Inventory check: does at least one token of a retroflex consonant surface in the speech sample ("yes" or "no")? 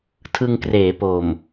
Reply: no